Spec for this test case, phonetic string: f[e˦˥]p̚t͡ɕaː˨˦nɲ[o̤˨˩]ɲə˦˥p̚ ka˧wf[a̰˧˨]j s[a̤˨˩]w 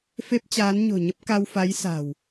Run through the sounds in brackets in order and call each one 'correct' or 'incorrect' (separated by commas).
correct, correct, incorrect, correct